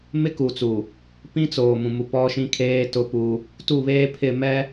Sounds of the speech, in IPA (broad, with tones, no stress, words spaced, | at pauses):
mɪ˦ku˨t͡su˨ | pĩ˦t͡soː˨ mũ˨mu˨ pɔ˦ʃĩ˦ kʰeː˦ tʊ˦pu˦ | tu˦˨βeː˦ pʰɪ˦˨mɛ˦